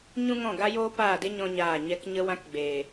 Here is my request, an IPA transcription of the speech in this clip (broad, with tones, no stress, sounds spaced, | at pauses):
ɲ ũ˦ ŋ ɔ̃˦˨ ɡ a˦ j oː˦ p aː˦˨ d e˦ ɲ ɔ̃˦ ɲ aː˦˨ ɲ ɛ˦ k ɲ ə˧ w ã˧ k ɡ͡b eː˨